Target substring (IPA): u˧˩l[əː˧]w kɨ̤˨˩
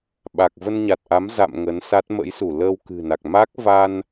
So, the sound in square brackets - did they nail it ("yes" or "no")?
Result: yes